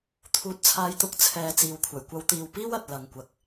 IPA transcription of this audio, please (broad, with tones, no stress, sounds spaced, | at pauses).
t̪ʰ uː˨ t̚ t͡sʰ aː˨˧ j t̪ ʊ˨˥ k̚ t͡sʰ ɛː˨ t͡s iː˨ w kʷʰ ɐ˨˩ j kʷ ɐ˨˧ w t̪ iː˨ w p iː˥ w ɐ˨ t̚ l ɐ˨ ŋ kʷ ɐ˨ k̚